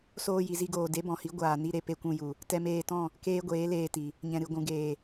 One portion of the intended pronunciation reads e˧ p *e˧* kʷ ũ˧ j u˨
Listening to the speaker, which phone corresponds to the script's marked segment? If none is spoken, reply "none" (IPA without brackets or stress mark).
e˧